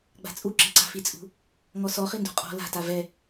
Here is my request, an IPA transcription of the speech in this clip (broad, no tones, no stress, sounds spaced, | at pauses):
ɡ͡b a̤ t͡sʼ u ǁ e̤ ǀ a̤ f i t͡sʼ ṳ | ŋ ɔ s ɔ χ i n d ṳ qʼ ɔ̤ l a̤ t a v ɛ